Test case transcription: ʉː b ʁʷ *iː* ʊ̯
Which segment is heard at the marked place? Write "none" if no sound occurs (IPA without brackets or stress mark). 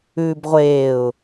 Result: eː